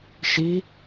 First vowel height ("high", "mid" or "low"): high